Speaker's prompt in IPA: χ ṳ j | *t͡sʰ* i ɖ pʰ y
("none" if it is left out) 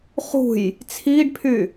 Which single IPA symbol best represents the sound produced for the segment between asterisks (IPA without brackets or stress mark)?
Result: t͡sʰ